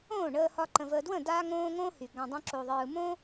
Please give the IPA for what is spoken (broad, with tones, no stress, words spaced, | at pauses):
õː˦˨ɳəː˧hɒ˧ ǃə̃˨vəː˨dwə̃˦˨ daː˦ŋõː˦ ŋõː˦hy˨ ɡã˧ dˤõ˦ǁo˧ðˤɯː˧ mõ˦